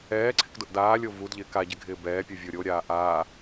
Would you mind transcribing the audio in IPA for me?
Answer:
ɛːǀʰɪk dʊʔdaːlʲo vudʎɪːk aɟɪ ɡʱɪːbɛːpʲu vʲoɾʲoɾʲaː ʔaː

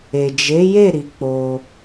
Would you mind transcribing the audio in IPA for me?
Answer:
e˨d͡ʒe˨˦je˦˨ ɾi˨˦k͡po˧

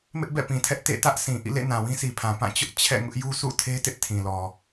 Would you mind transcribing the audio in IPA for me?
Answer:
mɪ˦ʔbɛ̰˦˨pĩ˨tʰɛ˦ʔ tḛ˦˨ tä˦ʔ sʰĩ˨ ʔḭ˦˨lḛ˦˨ nã˨wĩ˦sʰi˨pʰã˨ pã˦˨t͡ɕʊ˦ʔ t͡ɕʰɛ̰˦˨ŋʊ˦ʔ ju˦sṵ˦˨tʰe˦tɪ˦ʔ tʰĩ˨lɔ˨

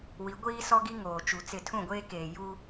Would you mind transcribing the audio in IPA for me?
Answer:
wi˨˦ɡʷiː˦sɔ˦ɡi˦ ŋoː˨t͡ʃu˨t͡sɪ˦˨ tʰũ˦˨ɡʷeː˦keː˨ ju˦

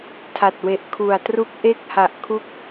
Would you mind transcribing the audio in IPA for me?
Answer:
tʰa˨˩t̚we˨˩ʔ kʰu˨˩a̯tru˦˥k̚ʔe˥˩k̚ ha˨˩ʔkʰu˦˥k̚

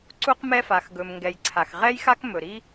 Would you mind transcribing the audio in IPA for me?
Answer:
ǀu˥qmɛ˥fa˩x ɡɵ˩mŋɡɛ˩j ǀʰa˩xʁɛ˥jxa˥kmɵ˩ ɾi˥

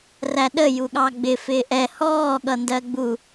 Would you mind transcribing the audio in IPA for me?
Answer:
ræɗə juɠɑɡ͡bɪ fɪːʔɛ hɔː ɠʌndɜɡ͡bu

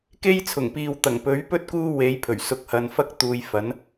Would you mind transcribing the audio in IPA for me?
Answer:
ke˥jt͡sʰʊ˨˩ŋpiː˨w t̪ɐ˨˩ŋpɵ˨˥ɥpɵ˥t̚ kuː˥we˨˥jpʰɵ˨˩ɥ sʊ˧k̚hɐ˨˧n fɐ˥k̚t̪uː˨˧j fɐ˨˥n

